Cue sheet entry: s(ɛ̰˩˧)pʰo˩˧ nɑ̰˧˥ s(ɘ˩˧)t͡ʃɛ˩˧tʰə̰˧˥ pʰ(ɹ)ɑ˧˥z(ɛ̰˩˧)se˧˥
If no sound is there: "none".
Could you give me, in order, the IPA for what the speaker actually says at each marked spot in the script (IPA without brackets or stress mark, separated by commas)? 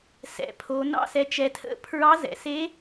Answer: ɛ̰˩˧, ɛ˩˧, ɹ, ɛ̰˩˧